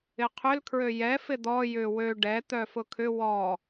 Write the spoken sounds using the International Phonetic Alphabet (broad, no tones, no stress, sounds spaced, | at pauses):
ɪ qʰ ʏ l kʰ ɹ ø j ɛ f ɪ d̪ ɔ j ʏ w ø ɖ ɛ t̪ œ f ʊ kʰ ʏ w ɔ